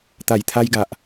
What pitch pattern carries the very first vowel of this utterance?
low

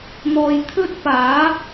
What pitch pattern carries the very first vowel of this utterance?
low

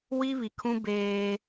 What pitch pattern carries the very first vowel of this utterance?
high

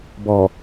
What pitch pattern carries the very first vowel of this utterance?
low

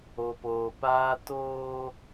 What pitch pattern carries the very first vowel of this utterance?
low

